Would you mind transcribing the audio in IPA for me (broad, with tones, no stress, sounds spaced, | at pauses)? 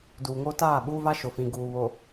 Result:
d uː˨ ŋ oː˦ t aː˦˨ ɓ u˦ v a˦ ʃ ʊ˨ f ĩ˨ ɡ uː˨ β o˨